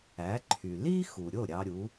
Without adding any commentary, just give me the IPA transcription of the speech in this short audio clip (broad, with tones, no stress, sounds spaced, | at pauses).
æ˩˥ ǃʰ y˩ l i˥ x u˩ ɾʲ o˥˩ ɾʲ ɑ˧ ɾʲ u˩˥